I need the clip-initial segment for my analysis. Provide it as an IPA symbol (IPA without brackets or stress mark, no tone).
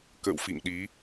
k